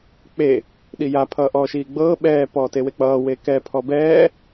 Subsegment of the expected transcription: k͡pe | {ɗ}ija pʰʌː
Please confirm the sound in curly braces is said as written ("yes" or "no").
yes